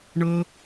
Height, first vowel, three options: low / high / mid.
mid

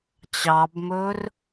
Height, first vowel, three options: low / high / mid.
low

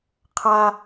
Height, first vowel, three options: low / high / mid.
low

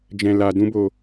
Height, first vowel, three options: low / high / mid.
mid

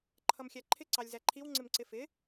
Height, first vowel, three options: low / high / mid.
mid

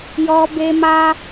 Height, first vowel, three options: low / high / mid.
mid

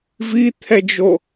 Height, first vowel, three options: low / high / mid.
high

